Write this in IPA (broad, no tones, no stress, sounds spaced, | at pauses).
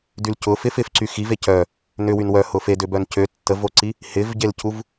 d y l c ʊ f ɪ f ɪ f ǀ y x i v e c œ | n ʏ w y n w œ h ʊ f e d ʏ b œ n c ø tː ə v o ǀ i | h ɪ v ɟ e l c u v